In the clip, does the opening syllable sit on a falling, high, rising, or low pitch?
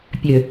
low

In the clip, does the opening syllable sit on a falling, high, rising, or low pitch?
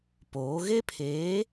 rising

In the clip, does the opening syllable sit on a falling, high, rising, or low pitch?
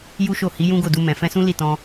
high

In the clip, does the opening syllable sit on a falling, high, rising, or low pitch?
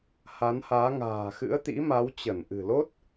rising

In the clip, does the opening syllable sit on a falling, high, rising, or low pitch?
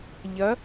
rising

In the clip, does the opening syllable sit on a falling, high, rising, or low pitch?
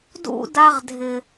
high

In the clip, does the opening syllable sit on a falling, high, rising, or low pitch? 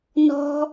high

